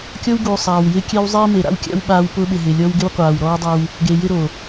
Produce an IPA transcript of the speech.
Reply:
kʲɔ˦wɡuː˨ sˤaː˨wjɪ˦ kʲe˦w zˤiː˦me˨ ɾa̰˦wkʲa̰˦w ɓaː˦w pʊː˦ɓɪ˨ɦɪː˨lʲɔ˦w ɡɪ˦wqʷaː˨wɾɔː˦wdˤɛ˦w | ɡe˨ jɪ˦ɾo˨

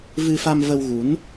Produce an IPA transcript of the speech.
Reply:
vɨ˧fa˧mvə˧wɣu˨˦n

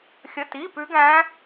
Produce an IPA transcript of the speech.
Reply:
xʲə˧˥˧ti˧˥˧pʉ˦˥ɡæ̃˦˥

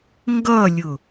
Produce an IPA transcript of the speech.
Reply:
ŋɡʌlʲʊ

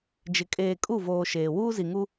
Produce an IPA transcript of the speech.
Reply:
d͡ʒɪ˨ kʼeː˨kʼu˦˨voː˨ ʃeː˨wuː˦ zi˨ŋu˦

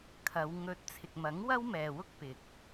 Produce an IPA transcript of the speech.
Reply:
kʰɐ˨˧wŋɵ˧t̚ t͡sʰɪ˨k̚mɐ˨˥ŋwɐ˥w mɛː˨wʊ˥k̚ pɪ˨k̚

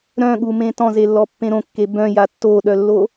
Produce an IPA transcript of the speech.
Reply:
ɾœ̃ɠumẽ tɔ̃zelːɔpːẽ ɾõkːe bœ̃ja tːoːɗœlːo

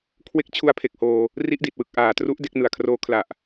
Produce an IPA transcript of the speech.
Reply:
kʰwe˦˥k̚ t͡ɕʰu˦˥a̯pʰe˨˩k̚hoː˧ | ri˦˥ʔdi˨˩t̚wɯ˨˩k̚ ʔaː˨˩tru˦˥ʔ de˥˩k̚nɯ˨˩a̯kʰroː˦˥ kʰla˨˩ʔ

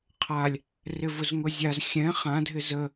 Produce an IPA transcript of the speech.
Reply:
qʰalʲ | rɪvʊzŋʊzʲaz xʲɛ̃ χãdʱɪ zə

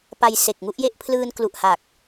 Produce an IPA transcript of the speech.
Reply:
pa˧jse˨˩k̚ŋu˥˩ʔje˥˩ʔ pʰlɯː˧nklu˨˩ʔha˨˩k̚

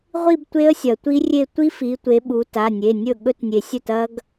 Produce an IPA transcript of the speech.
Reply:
ʁʷi˥˧btʷe˦˥ə̯ sʲɐ˩tʷi˦˥rʲe˥˧ tʷi˦˥fi˩˧tʷe˩˧ ɓu˩˧ ta˩˧˩nʲe˩˧˩ nʲɵ˥˩ ɠɵ˦˥tnʲe˩sʲɵ˥˩tɐ˦˥ɡ

